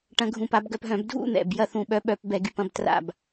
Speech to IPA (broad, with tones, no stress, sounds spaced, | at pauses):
ʈ ɐ̃˧ ɡʱ ũ˧˩ p a˥˧ b ɡ œ˧ p ɦ œ̃˧˩˧ b dʱ ṵ˥˧ n̪ ɛ̰˧˩ b j ɐ˥˧ θ ũ˧˩ ɓ œ˧˥ ɓ œ˧˩˧ p b ɛ˧˩˧ ɡ y˧˩ p ɐ̃˧ b t r a̰˧˩ b